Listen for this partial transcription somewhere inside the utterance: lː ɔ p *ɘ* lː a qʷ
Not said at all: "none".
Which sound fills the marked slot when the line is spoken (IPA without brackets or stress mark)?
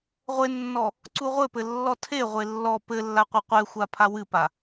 ɘ